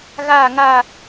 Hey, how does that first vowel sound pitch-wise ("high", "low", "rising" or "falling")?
falling